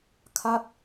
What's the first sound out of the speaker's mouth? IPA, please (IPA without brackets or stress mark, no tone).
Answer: kʰ